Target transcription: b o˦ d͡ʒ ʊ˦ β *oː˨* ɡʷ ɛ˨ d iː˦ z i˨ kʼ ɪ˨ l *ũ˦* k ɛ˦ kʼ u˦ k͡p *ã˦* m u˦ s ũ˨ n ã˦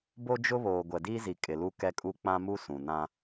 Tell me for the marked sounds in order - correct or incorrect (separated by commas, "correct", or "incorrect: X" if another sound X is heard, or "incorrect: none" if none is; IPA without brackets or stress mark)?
correct, incorrect: u˦, correct